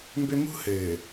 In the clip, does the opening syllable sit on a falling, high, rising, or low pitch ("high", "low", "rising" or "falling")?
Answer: high